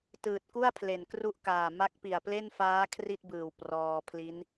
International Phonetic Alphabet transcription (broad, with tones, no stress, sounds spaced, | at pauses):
t ɯː˨˩ t̚ k u˥˩ a̯ pʰ l e˨˩ n k r u˦˥ ʔ k aː˨˩ m a˦˥ k̚ p i˨˩ a̯ p l e˥˩ n f aː˦˥ kʰ r i˥˩ t̚ b ɯː˨˩ w p r ɔː˧ pʰ l i˦˥ n